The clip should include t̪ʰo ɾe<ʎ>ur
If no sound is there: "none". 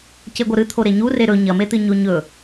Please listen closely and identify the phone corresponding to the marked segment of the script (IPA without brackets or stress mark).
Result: ɲ